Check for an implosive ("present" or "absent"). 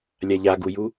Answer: absent